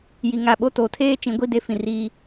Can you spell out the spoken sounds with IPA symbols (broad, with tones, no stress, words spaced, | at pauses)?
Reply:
ji˨ŋa˨ ɓo˦˨to˨˦ tʰeː˦t͡ʃĩ˨˦ɡʷi˦˨de˦ fĩ˨ri˦